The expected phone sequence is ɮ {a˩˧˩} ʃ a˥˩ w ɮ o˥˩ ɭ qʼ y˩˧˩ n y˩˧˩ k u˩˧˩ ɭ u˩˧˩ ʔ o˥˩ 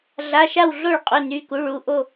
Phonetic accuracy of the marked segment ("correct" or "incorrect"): correct